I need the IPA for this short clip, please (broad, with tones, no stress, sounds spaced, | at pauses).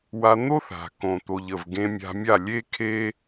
w a˧ n̪ o˦ θ a̤˨ k õ˨ t̪ o˨ ʎ ə˨ v ɡ ẽ˧ mʲ a̤˧ mʲ a˦˨ lʲ e˦ kʰ e˦